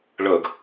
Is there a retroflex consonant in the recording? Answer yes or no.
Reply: yes